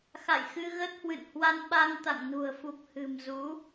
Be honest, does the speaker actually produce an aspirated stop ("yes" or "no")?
no